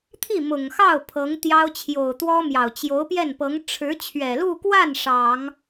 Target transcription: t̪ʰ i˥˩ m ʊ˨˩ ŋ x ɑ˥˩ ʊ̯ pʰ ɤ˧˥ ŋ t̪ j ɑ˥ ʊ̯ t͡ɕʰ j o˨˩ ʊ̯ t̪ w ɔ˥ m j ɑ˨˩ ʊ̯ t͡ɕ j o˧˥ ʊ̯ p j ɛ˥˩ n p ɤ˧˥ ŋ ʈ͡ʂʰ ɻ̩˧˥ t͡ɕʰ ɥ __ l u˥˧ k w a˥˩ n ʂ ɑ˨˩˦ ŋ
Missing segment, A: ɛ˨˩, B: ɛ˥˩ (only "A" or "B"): A